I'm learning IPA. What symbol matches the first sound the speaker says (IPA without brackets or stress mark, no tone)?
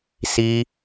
s